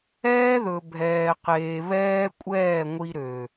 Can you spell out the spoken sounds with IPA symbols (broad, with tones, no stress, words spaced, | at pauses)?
ɛː˦ðɵ˨ bʱɛː˨qeː˨ βɛː˦kʷʼɛː˦˨ ŋʷi˧ɾø˨